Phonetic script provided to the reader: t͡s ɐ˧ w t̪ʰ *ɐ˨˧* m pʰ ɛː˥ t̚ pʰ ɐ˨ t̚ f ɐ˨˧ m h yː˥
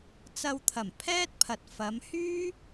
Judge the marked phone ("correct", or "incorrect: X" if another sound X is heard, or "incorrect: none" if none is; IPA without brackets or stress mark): incorrect: ɐ˨˩